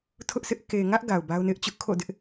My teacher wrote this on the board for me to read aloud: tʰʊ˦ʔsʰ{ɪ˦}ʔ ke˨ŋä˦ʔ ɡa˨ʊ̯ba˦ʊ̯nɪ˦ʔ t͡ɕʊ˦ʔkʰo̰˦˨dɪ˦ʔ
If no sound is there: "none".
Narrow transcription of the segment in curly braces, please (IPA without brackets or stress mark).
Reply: ɪ˦